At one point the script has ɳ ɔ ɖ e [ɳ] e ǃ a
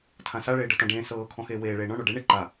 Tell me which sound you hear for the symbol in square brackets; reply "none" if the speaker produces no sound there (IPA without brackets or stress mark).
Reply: ɳ